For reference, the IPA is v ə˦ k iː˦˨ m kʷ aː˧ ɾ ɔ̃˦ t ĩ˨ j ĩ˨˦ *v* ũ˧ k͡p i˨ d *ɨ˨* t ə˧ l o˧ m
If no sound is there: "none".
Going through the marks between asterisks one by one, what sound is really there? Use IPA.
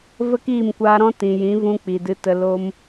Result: v, ɨ˧

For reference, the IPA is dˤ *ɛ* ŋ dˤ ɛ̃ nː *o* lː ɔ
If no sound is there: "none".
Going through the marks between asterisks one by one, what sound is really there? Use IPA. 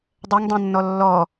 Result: ɛ, ɔ

